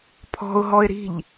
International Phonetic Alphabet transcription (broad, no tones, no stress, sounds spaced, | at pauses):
pʰ ɔ̤ ʊ̯ ɦ ɔ ɪ̯ ɾ i̤ ʎ